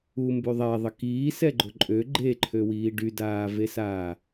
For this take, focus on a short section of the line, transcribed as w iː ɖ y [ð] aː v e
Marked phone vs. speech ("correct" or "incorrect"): incorrect